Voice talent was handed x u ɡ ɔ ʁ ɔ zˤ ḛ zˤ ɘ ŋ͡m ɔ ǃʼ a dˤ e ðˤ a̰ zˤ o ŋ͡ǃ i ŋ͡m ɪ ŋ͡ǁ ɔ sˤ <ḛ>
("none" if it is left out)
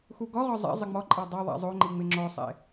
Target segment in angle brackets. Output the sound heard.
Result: ḛ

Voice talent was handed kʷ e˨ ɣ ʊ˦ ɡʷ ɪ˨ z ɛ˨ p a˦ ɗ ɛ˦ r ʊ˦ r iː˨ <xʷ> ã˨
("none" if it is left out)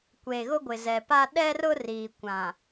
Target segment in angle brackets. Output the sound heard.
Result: kʷ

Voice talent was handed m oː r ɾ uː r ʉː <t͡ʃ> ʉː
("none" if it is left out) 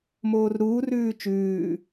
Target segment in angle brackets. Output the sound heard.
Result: t͡ʃ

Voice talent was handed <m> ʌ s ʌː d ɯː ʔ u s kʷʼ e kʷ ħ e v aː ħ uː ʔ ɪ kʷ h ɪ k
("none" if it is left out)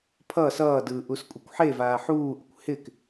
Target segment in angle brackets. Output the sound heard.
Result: pʰ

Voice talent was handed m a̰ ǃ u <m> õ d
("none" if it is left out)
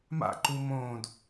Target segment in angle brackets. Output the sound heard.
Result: m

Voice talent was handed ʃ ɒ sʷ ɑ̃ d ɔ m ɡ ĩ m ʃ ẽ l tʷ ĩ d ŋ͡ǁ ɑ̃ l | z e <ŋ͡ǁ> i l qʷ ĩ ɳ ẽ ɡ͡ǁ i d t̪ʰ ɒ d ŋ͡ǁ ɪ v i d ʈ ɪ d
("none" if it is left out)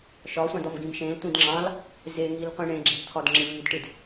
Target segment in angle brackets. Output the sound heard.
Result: ŋ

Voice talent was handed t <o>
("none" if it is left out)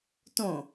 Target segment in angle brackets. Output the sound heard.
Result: õ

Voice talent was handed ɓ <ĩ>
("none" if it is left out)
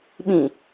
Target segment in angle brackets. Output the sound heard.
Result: ĩ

